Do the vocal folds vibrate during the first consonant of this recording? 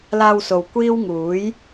yes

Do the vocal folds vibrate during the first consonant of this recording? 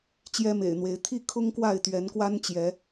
no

